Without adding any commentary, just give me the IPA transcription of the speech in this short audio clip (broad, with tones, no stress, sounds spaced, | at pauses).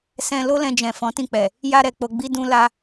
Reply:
s ɛ̃˧ l o˦ l ɛ̃˧ d͡ʒ ɛ̃˨ f ɔ̃˨˦ t ĩ˦˨ k͡p ɛ˨ | j a˧ ɾ ɛ˨ k͡p o˨ ɡ͡b i˧ d ũ˧ l a˧